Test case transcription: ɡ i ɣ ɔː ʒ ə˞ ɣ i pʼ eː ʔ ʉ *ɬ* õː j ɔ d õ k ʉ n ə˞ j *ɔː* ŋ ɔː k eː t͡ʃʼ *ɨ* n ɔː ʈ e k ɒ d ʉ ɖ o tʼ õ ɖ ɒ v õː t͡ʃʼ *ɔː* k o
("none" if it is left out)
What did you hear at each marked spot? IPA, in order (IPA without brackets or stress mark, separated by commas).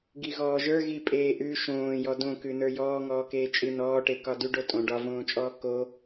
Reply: ʃ, ɔː, ɨ, ɔː